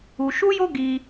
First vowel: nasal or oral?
oral